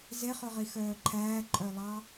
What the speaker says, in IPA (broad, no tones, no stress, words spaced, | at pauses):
zeχɵʁi xœːǃʰæːǃʼœlˠɑ